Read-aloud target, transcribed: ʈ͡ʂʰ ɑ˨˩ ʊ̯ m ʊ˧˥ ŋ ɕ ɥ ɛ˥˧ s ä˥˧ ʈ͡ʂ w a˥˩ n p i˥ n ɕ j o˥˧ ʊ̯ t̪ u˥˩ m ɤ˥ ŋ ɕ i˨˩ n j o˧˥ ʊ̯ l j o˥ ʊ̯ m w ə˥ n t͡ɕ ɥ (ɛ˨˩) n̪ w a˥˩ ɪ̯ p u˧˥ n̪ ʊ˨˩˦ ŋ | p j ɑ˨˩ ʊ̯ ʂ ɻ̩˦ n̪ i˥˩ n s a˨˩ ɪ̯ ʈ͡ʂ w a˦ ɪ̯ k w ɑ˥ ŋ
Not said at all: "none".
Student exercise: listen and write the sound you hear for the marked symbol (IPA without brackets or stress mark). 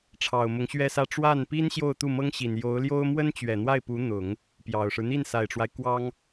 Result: ɛ˨˩